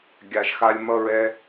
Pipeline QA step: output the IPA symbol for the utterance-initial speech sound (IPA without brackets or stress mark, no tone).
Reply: ɡʲ